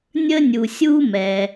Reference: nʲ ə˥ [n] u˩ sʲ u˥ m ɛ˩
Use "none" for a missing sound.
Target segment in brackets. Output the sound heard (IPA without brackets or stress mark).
nʲ